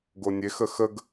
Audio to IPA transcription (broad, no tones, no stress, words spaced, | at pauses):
ɡonʲexə xəɡ